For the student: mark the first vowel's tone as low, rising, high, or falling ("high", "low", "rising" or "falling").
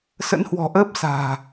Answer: rising